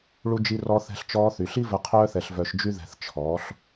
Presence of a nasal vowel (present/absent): absent